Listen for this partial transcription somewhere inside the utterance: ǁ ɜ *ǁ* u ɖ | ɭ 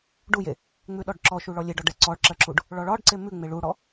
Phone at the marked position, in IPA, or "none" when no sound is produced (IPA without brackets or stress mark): ǁ